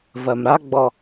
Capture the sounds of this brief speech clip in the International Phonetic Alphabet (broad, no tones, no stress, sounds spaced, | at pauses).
v ɜ m ɾ a ɡ͡b ɔ